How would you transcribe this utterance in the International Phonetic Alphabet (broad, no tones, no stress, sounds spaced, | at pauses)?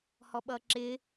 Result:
h ɔ ɓ ʌ ǁ ɪ